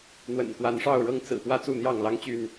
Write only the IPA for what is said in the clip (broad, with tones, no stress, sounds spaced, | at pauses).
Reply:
n̪ w ə̰˨˩ n k w a˨˦ n ʂ ɑ˥˨ ʊ̯ ɻ ɤ˦ ŋ t͡s ɹ̩˨˩ p w ä˦ t͡s u˥˨ n̪ j ɑ˥˨ ŋ l ɑ˦ ŋ t͡ɕ y˥˨ n